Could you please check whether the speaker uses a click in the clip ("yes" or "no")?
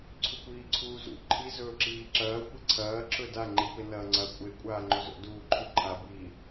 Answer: yes